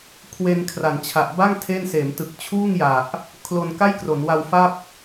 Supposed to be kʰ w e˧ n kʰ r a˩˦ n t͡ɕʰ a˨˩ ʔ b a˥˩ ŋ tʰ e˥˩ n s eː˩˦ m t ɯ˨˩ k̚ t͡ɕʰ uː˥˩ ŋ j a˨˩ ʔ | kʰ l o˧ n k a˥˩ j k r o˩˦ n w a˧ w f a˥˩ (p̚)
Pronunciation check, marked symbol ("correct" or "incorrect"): correct